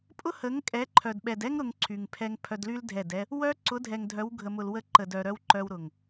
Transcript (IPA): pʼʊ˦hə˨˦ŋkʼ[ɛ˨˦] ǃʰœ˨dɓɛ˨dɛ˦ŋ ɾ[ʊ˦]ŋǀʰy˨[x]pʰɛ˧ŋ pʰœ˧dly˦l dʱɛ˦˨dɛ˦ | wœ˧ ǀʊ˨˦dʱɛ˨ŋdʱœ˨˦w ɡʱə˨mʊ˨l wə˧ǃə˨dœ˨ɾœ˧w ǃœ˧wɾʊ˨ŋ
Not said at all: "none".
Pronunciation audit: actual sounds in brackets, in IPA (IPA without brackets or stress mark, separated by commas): ɛ˨˦, ʊ˧, ŋ